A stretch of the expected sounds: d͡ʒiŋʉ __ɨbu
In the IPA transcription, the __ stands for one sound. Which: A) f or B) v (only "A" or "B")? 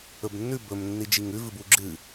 B